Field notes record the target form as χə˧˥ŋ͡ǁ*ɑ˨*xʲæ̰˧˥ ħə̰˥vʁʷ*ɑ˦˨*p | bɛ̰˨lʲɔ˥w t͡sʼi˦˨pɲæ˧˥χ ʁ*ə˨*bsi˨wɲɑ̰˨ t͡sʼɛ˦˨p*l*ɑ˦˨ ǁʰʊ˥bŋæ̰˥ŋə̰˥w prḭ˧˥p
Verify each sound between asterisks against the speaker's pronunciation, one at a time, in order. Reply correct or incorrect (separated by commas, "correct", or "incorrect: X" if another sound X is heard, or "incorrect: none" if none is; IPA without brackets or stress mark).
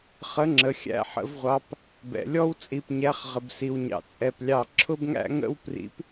incorrect: ə˨, incorrect: ɑ˧˥, correct, incorrect: lʲ